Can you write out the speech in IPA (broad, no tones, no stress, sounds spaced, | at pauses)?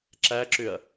ǁ æ ǁ ʏ ɐ̯